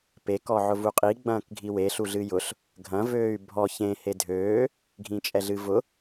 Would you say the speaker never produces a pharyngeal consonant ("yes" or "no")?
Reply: no